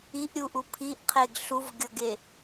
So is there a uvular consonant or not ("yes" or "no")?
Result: yes